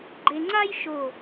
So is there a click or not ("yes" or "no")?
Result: yes